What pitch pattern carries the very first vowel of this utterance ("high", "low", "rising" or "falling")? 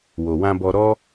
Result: low